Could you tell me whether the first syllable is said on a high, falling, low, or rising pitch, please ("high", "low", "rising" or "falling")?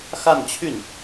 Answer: falling